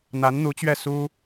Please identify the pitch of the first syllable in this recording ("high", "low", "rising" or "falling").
rising